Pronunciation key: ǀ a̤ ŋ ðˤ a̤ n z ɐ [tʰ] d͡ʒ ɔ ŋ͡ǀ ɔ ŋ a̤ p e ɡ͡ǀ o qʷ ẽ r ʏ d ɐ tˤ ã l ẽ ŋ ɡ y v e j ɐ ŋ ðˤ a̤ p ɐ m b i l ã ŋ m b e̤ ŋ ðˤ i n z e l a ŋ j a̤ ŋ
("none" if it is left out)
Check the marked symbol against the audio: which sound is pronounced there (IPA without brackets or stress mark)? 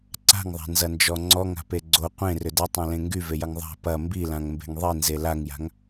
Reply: n